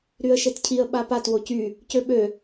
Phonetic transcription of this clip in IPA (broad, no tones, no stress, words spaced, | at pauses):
ɾyə̯ʃetcʰiə̯ ɓapat wocy | cøɓø